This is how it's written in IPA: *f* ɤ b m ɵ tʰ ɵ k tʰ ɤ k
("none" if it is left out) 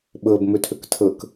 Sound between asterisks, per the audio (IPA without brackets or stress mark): ɓ